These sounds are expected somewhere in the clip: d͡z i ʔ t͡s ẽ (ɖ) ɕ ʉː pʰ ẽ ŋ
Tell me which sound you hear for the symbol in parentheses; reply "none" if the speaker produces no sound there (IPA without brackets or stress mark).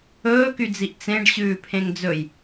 ɖ